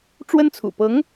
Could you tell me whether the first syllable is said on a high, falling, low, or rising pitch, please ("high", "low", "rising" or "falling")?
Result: high